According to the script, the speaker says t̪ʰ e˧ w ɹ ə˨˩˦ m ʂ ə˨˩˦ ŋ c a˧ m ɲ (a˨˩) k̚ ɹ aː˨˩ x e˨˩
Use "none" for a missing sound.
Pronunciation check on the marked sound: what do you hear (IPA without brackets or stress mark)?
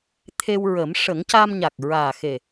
a˨˩